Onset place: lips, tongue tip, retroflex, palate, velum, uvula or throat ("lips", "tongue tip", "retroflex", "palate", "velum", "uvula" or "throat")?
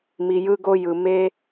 lips